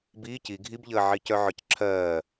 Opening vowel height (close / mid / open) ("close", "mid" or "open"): close